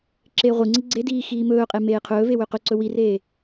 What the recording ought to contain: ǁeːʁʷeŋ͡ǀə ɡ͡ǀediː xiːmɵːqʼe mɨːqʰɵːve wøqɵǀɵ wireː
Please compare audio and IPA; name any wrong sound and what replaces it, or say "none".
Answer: ɨː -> eː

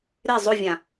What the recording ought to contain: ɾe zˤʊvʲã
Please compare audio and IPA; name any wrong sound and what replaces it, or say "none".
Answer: none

